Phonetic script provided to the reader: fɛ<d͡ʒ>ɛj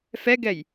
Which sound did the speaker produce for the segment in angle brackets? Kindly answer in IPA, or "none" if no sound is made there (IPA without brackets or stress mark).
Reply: ɡ